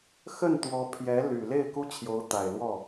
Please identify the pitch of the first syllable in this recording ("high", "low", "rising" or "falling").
falling